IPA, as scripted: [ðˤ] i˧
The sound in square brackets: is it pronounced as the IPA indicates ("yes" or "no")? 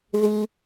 no